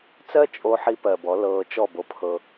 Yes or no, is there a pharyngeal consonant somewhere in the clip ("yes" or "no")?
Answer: yes